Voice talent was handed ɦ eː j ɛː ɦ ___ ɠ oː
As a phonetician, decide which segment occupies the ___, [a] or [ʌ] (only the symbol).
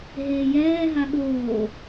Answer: a